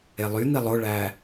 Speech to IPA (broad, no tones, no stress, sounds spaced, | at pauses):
e lˠ y n̪ i lˠ o ɭ æ